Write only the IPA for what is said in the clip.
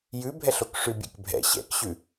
jʉbʱɛɬ okʂʉbʲḛkbʱɛ̰ ɕɛ̰kɕʉ

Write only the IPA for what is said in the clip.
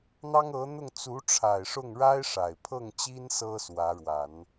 n̪ɑ˥ŋɤ˧˥n̪ʊ˥˩ŋ t͡su˧˥ʈ͡ʂʰa˨˩ɪ̯ʂʊ˥˩ŋ ɻa˥ɪ̯ʂa˨˩ɪ̯pʰɤ˥˩ŋt͡ɕi˥n sɤ˥swä˧˥ɻwa˨˩˦n

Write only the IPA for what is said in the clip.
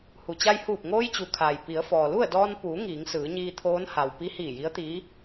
hu˩t͡ɕa˧jhuː˧˩p̚ ŋoː˧jt͡ɕu˩kʰaː˩j pi˩˧ə̯fɔː˩ lu˥˨ə̯dɔː˧n puː˩˧ ŋiː˩˧ŋsɯː˩˧ɲiː˧t̪ʰoː˧˥n ha˩w pi˧˥hiː˧˩ji˧˥ə̯t̪iː˧˥

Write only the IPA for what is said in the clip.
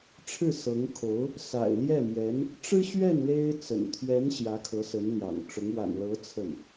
ʈ͡ʂʰɻ̩˥˩sɤ˧˥ŋkʰo˧˥ʊ̯ | sa̰˨˩ɪ̯ljɛ˥˩mjɛ˧˥n | ʈ͡ʂɻ̩˥ɕɥɛ˥˩n le˥ɪ̯ t͡sə̰˨˩nt̪ʰɥɛ˧˥n ɕjä˧˥kʰɤ˧˥sə˧˥n ljɑ̰˨˩ŋʈ͡ʂʊ˧˥ŋ wa̰˨˩nlɤ˧˥ t͡sʰə˥˩n

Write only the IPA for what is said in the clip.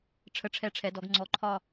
ʈ͡ʂʰə˧˩ʈ͡ʂʰɛ˧˩ʈ͡ʂʰɛ˩˧dɔ˩˧ɡ ŋ͡ǀɔ˩˧ǃʰɒ˧˩

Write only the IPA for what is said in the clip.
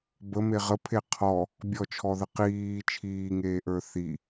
bəme ʁəpʰe qʰɔ | bʲɔt͡ʃʰɔðə qiː t͡ʃʰiːŋeːʔə˞ θi

